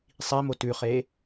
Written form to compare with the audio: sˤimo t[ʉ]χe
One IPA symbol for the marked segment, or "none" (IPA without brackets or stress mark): ʉ